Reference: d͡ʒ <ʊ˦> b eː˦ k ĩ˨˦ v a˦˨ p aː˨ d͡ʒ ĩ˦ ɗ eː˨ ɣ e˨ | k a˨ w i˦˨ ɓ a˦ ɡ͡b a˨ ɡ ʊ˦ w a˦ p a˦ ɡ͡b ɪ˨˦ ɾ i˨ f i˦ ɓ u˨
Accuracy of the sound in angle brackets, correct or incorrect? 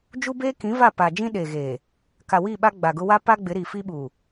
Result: incorrect